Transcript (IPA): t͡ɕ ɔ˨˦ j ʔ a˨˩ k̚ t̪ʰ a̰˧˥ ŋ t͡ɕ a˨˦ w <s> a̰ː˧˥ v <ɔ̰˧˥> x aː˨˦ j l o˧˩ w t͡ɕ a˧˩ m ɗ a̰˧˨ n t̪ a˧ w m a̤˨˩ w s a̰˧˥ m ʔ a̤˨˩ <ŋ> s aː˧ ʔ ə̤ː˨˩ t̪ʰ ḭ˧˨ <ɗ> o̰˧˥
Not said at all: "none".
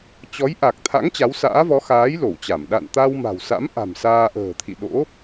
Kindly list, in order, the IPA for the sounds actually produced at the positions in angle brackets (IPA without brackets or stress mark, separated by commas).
s, ɔ˨˦, m, ɗ